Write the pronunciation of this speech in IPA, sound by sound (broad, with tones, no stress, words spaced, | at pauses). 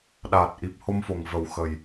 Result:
ɗaː˨˩t̚ ʔi˨˩p̚ho˧mfo˨˩ŋvə˨˩w xə˨˩j